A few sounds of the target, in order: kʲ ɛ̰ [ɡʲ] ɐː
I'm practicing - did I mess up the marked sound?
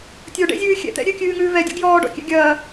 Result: no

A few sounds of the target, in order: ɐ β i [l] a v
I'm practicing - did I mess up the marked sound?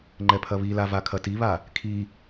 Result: no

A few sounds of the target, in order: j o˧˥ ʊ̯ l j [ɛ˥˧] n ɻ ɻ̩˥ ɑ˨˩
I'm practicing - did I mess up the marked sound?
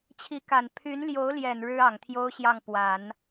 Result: yes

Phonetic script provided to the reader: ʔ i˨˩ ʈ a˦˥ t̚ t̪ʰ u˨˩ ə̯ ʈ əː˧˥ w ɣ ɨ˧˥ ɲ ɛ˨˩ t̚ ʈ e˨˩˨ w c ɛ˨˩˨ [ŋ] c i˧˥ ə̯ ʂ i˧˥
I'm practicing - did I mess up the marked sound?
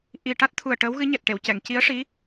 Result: no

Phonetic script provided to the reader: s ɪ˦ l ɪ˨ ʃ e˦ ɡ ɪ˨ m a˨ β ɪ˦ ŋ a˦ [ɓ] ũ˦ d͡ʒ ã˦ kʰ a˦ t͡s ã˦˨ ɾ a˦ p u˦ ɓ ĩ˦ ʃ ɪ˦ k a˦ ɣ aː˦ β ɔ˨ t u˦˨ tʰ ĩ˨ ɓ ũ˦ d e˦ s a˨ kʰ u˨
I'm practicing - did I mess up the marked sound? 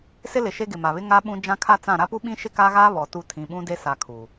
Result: no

